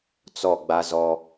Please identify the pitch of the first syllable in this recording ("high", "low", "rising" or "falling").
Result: falling